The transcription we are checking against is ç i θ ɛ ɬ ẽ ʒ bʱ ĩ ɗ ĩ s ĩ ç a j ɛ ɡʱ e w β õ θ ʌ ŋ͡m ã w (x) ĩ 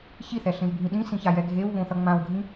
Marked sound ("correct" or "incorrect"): incorrect